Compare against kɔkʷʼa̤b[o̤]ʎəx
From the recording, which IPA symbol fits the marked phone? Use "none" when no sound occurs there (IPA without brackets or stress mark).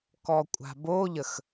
o